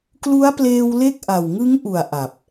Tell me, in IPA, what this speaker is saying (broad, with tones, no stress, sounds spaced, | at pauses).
k l u˦˥ a̯ p l eː˧ w l e˥˩ k̚ ʔ a˨˩ w ŋ ɯ˦˥ ŋ ʔ u˨˩ a̯ ʔ a˨˩ p̚